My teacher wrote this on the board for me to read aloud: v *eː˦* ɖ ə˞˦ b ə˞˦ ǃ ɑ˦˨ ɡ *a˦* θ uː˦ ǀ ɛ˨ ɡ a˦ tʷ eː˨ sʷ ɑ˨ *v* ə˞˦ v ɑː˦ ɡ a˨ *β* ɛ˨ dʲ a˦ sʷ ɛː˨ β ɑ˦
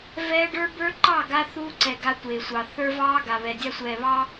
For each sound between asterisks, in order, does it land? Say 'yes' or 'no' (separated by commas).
no, yes, no, yes